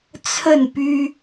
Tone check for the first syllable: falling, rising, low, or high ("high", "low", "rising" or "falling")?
falling